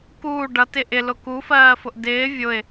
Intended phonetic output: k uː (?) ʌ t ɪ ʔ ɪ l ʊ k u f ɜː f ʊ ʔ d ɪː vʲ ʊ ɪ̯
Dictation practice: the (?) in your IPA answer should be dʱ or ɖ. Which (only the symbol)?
ɖ